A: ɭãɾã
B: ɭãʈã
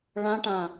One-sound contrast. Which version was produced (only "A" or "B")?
B